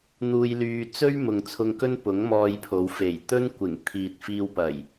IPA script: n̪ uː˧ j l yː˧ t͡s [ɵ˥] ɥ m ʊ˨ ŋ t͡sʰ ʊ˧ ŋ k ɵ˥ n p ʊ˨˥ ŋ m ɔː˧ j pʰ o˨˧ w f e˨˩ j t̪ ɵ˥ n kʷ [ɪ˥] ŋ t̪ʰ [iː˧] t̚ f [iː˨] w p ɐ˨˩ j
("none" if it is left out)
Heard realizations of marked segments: ɵ˥, ɪ˨˩, iː˨, iː˧

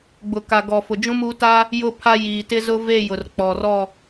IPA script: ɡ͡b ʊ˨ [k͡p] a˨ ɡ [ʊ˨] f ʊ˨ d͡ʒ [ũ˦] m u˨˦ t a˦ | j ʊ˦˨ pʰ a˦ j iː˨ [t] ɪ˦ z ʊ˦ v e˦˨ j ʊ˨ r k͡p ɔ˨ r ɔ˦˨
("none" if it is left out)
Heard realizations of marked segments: k, ɔ˨, ũ˦, t

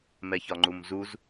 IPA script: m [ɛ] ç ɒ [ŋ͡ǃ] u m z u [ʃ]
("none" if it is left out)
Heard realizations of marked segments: ɛ, ŋ͡ǃ, z

